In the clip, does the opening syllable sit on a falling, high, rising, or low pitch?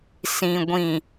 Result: low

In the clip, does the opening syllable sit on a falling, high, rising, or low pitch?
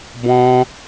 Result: high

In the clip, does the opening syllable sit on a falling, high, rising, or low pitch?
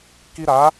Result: high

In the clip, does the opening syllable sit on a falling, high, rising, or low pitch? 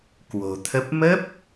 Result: low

